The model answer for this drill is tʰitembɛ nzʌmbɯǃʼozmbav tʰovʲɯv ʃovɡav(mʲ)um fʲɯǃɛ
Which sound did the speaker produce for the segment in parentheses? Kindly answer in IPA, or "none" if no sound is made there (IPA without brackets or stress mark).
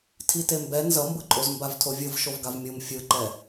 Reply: mʲ